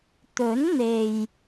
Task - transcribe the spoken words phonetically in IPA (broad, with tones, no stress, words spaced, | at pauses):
t̪ɵ˨˥n n̪e˨j